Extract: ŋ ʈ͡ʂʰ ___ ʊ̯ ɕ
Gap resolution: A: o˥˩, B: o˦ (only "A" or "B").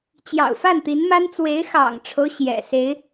B